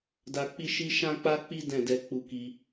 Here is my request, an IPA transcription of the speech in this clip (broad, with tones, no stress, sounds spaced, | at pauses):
d a˧ k͡p i˦ ʃ i˦ ʃ ã˦ k͡p a˦ k͡p i˦ d ɛ̃˦˨ d ɛ˧ k͡p u˧ k i˧